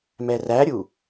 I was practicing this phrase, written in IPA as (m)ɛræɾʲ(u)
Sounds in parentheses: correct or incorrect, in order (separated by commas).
correct, correct